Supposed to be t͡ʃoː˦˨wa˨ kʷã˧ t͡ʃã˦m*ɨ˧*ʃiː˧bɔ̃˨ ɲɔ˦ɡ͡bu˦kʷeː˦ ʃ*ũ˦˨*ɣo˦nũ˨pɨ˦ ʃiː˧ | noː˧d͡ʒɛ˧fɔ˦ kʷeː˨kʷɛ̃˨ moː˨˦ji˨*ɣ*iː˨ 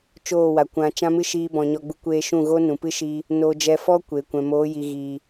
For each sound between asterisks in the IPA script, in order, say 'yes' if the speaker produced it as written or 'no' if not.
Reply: no, yes, yes

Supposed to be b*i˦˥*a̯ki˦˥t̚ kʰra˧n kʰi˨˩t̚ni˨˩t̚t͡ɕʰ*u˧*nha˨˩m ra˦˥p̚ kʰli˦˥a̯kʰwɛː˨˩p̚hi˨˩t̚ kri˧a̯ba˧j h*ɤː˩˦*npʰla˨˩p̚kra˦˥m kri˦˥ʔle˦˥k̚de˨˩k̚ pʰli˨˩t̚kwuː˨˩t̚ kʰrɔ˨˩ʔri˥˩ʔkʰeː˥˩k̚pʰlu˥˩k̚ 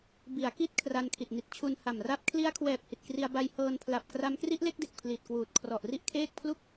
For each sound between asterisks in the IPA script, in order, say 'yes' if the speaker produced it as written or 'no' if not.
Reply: no, yes, no

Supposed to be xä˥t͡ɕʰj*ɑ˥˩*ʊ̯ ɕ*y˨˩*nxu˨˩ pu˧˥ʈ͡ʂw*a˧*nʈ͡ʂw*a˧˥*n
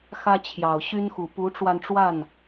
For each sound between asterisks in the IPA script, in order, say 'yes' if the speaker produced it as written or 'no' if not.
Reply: no, no, yes, no

